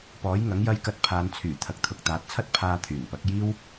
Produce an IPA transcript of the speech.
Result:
p ɔː˨˥ j ŋ ɐ˨˥ ŋ j ɐ˧ j k ɐ˧ t̚ pʰ aː˨˧ n t͡sʰ yː˨˩ t̪ʰ ɐ˨ k̚ t̪ʰ ʊ˨˥ k̚ t̪ aː˨˥ t̚ t͡sʰ ɐ˥ t̚ pʰ aː˧ t̪ʰ yː˨˩ n p ɐ˨˥ k̚ j iː˥ w

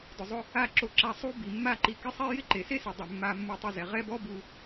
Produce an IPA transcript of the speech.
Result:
d ʊ˨ zˤ ʊ˧ | a˦˨ ǁ o˧ ǁ a˧ sˤ u˦ b i˨ mː a˦ ǃ i˧ k ɪ˦ sˤ ɛ˦ j ɪ˦ ǃ e˨ s e˦ s ɪ˨ dˤ ɪ˨ mː a˧ mː u˧ tˤ ʊ˦˨ z ɛ˨ ʁ ɛ˦ b ɔ˦ b u˧

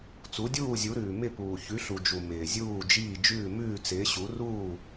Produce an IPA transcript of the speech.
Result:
t͡s u˨˥ dʲ uː˥˨ zʲ u˨˥ ɾ ʉː˨ m ɪ˥˨ p uː˨ ç ʉ˨˥ ɬ u˨ d͡ʒ u˨ m ɪː˨ zʲ uː˥˨ d͡ʒ iː˥˨ d͡ʒ ʉː˥˨ m ʉː˥˨ t͡s ɪː˨˥ ɕ u˨˥ r uː˥˨

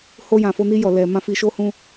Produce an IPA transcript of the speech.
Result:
h o˧ j ã˨ f o˧ n i˧ j ɔ˨ l ɛ˨ m ã˧ f i˨ ʃ o˧ h ũ˧

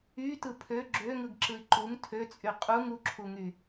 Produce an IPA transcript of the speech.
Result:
y t ɯ pʰ ø ɡ͡ǁ ø ŋ ɯ ɡ ǁ ɯ i̯ ǃ u ŋ tʰ ø t͡sʼ y qʼ u ŋ u ǁʰ u ŋ y

